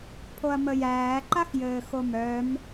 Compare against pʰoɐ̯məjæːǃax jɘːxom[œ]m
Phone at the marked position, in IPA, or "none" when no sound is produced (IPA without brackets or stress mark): œ